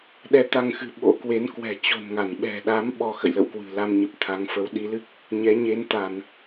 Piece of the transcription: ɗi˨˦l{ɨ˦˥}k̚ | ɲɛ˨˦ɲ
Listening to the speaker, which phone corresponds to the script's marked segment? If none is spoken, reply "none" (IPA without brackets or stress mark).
ɨ˦˥